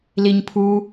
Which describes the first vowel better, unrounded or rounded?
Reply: unrounded